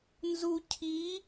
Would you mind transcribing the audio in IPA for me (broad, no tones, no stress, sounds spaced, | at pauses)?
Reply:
n z u cʰ i